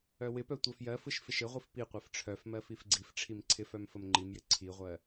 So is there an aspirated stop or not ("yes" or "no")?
yes